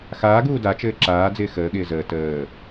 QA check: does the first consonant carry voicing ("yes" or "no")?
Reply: no